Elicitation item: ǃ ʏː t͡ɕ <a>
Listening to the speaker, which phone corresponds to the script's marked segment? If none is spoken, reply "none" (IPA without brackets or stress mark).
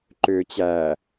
æ